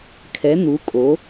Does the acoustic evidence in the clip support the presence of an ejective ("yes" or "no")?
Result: yes